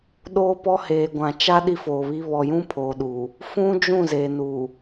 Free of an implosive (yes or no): no